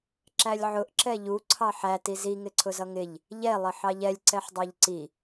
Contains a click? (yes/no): yes